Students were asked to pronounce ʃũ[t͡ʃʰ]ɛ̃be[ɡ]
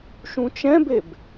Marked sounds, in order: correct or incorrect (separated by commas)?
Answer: incorrect, incorrect